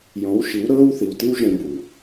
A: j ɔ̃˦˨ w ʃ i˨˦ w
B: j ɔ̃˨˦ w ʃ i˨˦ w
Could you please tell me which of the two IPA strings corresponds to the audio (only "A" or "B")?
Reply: B